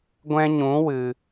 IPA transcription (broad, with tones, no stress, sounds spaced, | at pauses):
ɡʷ ɛ̃˦ ɲ ũ˨˦ w ɨ˨